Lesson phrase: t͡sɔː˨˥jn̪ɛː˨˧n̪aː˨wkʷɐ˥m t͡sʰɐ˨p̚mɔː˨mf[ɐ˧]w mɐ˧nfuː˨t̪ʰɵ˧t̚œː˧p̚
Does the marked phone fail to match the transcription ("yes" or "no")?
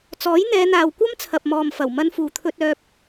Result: yes